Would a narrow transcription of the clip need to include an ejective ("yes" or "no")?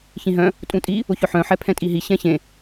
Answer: yes